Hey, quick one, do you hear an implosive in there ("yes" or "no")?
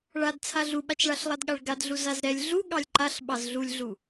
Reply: yes